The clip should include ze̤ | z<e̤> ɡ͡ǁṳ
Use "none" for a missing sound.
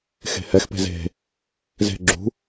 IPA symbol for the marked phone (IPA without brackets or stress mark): e̤